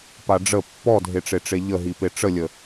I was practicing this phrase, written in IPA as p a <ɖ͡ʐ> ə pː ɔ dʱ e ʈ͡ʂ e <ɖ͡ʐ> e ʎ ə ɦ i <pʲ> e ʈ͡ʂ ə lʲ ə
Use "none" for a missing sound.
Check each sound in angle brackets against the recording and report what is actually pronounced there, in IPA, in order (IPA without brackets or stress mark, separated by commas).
ɖ͡ʐ, ʈ͡ʂ, p